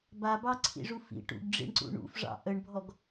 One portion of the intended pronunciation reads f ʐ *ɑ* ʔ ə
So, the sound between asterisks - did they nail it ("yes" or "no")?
no